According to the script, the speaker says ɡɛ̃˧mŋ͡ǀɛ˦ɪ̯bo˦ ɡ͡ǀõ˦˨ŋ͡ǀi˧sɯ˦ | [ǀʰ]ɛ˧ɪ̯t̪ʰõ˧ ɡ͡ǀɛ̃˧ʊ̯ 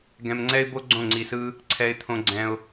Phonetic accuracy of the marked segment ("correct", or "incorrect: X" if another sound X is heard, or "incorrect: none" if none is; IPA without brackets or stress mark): correct